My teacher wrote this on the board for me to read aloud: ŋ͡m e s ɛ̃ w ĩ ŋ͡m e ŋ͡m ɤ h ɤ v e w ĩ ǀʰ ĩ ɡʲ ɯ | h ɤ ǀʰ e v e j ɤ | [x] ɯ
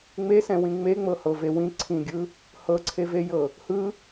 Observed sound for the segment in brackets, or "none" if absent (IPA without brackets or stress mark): h